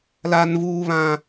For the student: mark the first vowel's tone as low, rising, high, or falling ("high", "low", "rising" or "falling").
low